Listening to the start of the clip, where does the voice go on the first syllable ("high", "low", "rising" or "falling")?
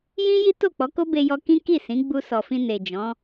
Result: high